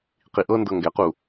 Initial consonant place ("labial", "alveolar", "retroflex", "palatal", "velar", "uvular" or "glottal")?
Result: uvular